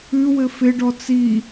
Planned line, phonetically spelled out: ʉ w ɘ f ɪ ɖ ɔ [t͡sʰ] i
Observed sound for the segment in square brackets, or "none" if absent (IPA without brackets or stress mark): t͡s